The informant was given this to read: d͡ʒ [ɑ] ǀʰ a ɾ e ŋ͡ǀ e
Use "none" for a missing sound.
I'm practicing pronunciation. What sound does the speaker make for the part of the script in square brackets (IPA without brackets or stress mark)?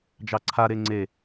ɑ